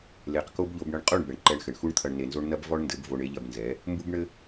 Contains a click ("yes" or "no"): yes